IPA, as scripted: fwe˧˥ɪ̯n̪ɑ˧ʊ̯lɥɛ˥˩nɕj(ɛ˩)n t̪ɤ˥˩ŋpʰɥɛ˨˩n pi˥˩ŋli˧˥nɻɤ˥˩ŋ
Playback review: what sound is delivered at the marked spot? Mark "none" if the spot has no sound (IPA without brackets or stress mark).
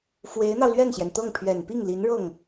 ɛ˩